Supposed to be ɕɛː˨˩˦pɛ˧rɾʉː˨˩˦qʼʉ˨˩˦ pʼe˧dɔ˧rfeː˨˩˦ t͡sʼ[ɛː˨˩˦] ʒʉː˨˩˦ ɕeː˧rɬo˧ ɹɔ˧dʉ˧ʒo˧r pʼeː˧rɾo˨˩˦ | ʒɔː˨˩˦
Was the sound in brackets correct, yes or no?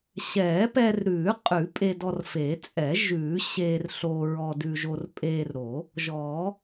no